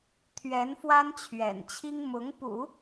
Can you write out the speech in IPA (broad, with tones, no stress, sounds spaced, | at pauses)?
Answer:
t̪ʰ ɥ ɛ˧˥ n f w a˥ n t͡ɕʰ ɥ ɛ̰˨˩ n t͡ɕʰ i˥ ŋ m ʊ˧˥ ŋ p ṵ˨˩˦